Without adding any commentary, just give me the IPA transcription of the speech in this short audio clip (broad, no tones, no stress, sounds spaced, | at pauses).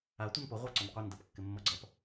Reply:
a tʷ ʌ n p ʊ ʁʷ a ǀ ʊ n qʷ ɪ n d ɐ p kː ɪ mː ʌ ɡ͡ǀ ʌ p